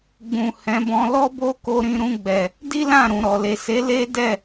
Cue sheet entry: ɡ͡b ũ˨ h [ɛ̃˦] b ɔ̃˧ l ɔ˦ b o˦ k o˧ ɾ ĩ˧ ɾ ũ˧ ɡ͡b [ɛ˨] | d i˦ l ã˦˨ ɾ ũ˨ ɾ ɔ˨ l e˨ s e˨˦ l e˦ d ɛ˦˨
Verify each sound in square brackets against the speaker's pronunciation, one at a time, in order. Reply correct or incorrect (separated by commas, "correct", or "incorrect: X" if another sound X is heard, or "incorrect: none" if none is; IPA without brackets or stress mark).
incorrect: ɛ̃˨˦, correct